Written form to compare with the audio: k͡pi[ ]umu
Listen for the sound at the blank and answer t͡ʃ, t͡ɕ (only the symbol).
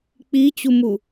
t͡ɕ